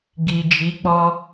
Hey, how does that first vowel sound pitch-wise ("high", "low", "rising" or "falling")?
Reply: low